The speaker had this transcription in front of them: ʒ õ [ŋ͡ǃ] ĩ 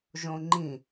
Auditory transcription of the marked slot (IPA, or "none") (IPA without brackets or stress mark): ŋ͡ǃ